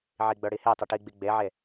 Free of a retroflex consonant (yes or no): no